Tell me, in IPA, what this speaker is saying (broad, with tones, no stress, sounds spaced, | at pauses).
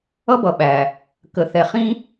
ʌ˦ b ʌ˨ ɓ æ˨ | k ə˨ θ ɛ˨ χ ĩ˦